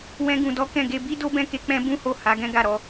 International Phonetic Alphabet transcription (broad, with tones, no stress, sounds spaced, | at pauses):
w ɛ̃˦ ɡ ũ˧ d ɔ˦ k ɛ̃˦˨ ɡ e˧ b i˦ d o˦ b ɛ̃˦ k e˧ k͡p ɛ̃˦ b ũ˦ h o˦˨ h a˨˦ ɡ ɛ̃˦ ɡ a˦˨ ɾ ɔ˨˦